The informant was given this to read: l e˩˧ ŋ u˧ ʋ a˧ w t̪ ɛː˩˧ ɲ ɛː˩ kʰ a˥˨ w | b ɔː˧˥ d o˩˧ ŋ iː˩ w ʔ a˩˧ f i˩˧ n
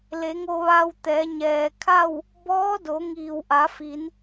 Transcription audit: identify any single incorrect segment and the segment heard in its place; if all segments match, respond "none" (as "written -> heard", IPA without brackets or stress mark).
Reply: u˧ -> o˧